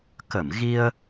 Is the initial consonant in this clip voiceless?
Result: yes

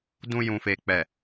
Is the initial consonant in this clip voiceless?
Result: no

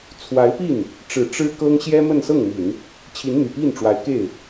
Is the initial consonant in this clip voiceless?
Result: yes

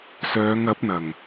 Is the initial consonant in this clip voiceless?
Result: yes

